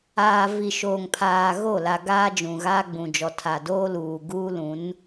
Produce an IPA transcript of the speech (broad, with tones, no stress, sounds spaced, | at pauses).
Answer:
aː˨ v i˨ ʃ oː˨ ŋ pʰ aː˨ ɣ o˦˨ l a˨ ɡ aː˦ d͡ʒ ũ˨ ɣ aː˦ ɡ͡b ũ˨ d͡ʒ ɔ˨ tʰ a˨ d oː˦ l uː˨ ɡ uː˦ l ũ˨˦ n